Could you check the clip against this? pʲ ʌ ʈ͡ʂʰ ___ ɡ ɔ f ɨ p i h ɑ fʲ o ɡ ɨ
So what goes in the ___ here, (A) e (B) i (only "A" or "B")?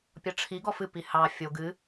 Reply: B